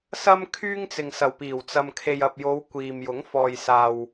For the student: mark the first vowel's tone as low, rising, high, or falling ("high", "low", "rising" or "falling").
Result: high